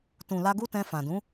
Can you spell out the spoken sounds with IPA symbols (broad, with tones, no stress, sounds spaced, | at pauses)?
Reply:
t ũ˨ l a˧ ɡ u˦ t ɛ̃˧ f ã˨ d ũ˨˦